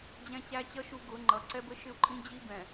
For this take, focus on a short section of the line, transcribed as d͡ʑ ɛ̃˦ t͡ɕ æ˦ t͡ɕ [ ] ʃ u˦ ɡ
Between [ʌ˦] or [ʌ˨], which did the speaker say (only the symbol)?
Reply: ʌ˦